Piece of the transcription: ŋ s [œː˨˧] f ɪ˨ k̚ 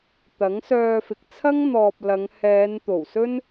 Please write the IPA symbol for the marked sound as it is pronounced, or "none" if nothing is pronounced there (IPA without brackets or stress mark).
œː˧